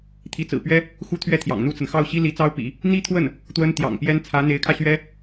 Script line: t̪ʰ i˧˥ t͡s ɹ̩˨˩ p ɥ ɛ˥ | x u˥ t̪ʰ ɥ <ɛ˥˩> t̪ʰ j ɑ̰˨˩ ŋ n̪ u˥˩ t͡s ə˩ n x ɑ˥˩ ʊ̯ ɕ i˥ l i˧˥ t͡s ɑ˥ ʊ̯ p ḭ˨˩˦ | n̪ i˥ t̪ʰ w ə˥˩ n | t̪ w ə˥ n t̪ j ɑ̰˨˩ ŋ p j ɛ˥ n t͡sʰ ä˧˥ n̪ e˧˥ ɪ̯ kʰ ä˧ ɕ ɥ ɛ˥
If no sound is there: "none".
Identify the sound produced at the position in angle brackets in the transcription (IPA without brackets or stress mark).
ɛ˥